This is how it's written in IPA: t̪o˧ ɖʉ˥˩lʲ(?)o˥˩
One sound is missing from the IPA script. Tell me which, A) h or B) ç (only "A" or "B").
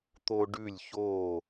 B